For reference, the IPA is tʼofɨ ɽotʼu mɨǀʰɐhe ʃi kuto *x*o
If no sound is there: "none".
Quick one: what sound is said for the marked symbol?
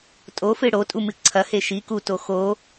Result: x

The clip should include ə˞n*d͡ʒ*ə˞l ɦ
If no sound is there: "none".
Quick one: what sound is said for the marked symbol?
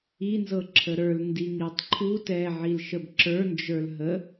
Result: d͡ʒ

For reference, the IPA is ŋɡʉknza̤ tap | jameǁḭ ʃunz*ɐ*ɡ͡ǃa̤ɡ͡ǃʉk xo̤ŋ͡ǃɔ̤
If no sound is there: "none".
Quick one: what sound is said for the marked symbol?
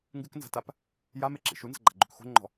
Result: ɐ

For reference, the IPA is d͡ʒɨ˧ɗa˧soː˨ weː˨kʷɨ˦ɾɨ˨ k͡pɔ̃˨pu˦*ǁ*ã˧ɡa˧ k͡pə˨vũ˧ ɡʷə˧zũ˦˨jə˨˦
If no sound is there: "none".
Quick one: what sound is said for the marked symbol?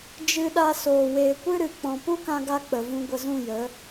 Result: k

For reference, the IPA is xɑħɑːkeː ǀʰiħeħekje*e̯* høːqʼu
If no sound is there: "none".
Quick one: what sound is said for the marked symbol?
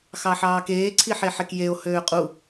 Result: o̯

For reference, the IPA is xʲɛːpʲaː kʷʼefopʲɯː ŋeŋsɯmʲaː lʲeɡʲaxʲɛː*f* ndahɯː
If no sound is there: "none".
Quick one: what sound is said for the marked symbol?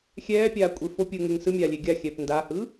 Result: p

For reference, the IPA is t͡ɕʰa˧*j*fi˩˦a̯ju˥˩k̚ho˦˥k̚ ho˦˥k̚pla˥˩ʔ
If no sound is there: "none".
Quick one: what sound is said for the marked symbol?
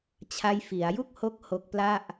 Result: j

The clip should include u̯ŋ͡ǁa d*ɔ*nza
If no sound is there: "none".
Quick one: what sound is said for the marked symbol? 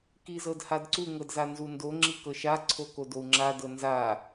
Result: ɤ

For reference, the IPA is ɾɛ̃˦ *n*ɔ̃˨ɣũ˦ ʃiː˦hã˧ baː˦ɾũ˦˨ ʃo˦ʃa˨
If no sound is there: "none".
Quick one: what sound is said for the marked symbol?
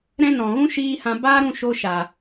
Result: n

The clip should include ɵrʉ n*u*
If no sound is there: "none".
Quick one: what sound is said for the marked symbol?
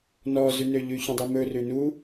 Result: u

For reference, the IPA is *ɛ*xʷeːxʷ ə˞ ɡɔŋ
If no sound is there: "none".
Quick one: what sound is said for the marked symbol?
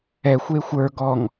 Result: ɛ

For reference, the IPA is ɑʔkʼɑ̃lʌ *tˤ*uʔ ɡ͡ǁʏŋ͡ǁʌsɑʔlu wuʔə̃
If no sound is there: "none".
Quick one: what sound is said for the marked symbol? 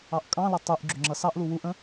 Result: tˤ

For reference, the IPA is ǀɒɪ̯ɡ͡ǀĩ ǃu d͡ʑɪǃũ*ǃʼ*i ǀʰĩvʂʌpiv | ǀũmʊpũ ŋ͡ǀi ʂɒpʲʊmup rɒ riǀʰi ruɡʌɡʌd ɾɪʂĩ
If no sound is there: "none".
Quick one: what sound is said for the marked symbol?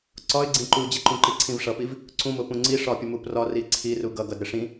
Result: ǃ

